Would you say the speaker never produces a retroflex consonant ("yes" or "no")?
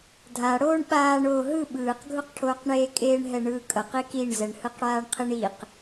no